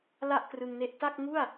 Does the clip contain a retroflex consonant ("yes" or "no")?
no